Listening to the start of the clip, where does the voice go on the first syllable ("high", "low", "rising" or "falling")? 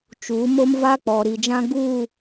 rising